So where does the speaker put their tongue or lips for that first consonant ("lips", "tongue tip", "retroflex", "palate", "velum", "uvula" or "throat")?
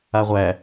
uvula